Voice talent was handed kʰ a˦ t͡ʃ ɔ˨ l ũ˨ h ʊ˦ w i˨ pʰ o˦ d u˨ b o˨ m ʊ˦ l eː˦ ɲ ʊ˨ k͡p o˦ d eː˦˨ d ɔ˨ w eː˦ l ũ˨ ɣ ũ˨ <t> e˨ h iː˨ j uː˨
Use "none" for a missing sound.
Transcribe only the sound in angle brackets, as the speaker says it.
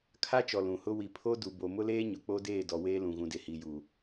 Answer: d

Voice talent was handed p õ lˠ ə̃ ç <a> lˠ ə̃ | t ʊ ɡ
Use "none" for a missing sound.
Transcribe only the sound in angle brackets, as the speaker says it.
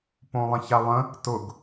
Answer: a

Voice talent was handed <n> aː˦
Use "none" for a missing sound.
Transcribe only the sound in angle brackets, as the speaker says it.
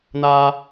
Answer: n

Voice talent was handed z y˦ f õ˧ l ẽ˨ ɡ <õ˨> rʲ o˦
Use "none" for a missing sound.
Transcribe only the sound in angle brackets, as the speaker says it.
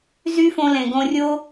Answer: õ˧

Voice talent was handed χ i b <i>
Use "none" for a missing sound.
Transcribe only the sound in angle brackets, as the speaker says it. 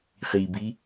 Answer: i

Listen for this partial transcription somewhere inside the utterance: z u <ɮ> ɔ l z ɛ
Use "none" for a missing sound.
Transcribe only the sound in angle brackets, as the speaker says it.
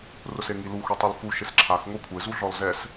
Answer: ɮ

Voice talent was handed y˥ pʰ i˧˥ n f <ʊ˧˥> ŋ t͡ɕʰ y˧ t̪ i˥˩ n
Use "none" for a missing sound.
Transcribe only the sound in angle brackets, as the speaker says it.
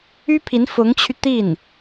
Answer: ʊ˧˥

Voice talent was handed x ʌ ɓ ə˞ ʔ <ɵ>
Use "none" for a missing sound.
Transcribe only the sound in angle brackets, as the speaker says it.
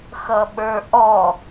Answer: ɔ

